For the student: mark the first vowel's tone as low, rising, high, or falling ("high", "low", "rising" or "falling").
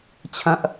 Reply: low